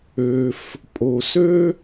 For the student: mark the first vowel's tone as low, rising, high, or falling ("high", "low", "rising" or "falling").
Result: low